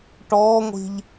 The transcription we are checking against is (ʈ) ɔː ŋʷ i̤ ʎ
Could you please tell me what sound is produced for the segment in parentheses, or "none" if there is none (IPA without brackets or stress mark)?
ʈ